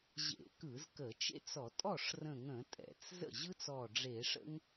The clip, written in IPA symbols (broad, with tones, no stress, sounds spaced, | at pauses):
ʑ ḛ˧˩˧ k ɯ˧˩˧ z k ə˧˩˧ t͡ʃ ḛ˥ t͡s ɔ˧˩˧ tʼ ɔ˥˩ ʂ r ə̃˧˩ ŋ ə̃˧˩˧ tʼ ɛ̰˧˩˧ t͡s z ə̰˥˩ ʑ ɯ˥ t͡s ɔ˧˩ ɖ͡ʐ e˧˩˧ ʂ ə̰˥ ŋ